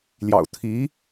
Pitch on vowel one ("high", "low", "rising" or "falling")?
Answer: low